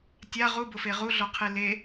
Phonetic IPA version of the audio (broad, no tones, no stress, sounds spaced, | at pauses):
tʲ a ʁ u b ʊ f e ʁ u ɮ ɔ qʰ e l e